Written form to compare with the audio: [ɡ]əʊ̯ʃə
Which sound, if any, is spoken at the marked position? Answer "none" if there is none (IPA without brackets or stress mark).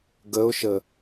ɡ